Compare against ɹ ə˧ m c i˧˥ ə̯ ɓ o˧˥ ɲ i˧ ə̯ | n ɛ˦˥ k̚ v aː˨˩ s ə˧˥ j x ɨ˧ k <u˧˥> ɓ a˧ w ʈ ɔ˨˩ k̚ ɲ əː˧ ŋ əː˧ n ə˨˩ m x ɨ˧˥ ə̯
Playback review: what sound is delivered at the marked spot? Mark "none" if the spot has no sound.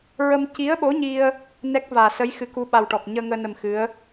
u˧˥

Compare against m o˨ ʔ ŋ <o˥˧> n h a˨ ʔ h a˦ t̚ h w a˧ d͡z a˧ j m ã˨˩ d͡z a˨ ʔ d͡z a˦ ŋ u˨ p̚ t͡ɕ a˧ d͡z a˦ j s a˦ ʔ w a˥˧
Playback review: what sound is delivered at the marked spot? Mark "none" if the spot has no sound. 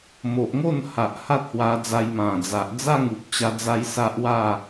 o˥˧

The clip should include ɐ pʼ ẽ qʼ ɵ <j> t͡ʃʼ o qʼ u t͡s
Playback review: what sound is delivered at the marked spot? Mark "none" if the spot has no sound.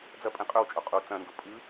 w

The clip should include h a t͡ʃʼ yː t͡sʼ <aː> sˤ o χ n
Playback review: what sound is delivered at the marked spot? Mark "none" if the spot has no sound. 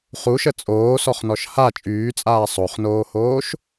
aː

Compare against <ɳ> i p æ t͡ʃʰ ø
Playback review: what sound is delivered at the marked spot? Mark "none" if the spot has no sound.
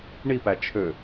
ɳ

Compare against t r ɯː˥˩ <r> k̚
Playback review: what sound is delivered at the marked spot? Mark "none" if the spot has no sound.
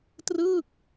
none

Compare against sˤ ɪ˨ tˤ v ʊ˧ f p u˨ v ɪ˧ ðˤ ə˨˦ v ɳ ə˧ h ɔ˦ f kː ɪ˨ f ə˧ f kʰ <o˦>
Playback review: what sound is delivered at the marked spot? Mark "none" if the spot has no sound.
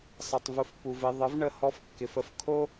o˦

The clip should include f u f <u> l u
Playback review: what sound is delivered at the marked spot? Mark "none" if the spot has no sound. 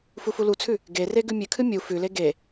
u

